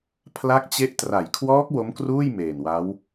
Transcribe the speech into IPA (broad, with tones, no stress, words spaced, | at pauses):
pʰla˦˥k̚t͡ɕe˦˥ʔ tra˩˦jkʰwɔː˦˥k̚ wo˦˥mkruː˥˩j meː˨˩nwa˦˥w